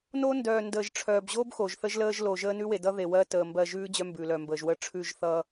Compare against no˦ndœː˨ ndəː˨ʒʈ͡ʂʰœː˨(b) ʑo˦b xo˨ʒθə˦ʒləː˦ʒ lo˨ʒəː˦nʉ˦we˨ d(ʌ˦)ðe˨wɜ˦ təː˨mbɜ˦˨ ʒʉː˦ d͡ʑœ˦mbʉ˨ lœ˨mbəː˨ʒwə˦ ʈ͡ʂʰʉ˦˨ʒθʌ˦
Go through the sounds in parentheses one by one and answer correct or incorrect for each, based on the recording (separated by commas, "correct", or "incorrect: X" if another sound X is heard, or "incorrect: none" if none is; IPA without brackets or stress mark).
correct, correct